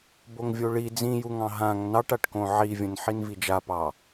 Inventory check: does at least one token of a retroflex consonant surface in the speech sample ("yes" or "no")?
yes